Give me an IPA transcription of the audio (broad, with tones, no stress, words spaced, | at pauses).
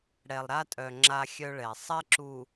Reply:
ɽɛ˨lˠɾa˦tʼœ˨ ŋ͡ǁa˦xʲœ˦ɭɛ˨ sˤɛ˦ǁu˨